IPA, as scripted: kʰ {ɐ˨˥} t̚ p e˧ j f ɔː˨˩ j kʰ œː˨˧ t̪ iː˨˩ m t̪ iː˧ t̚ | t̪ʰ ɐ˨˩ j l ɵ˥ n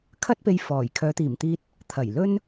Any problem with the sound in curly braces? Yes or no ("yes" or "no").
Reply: yes